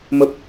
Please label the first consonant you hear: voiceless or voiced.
voiced